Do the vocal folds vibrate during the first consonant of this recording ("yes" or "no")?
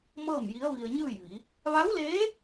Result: yes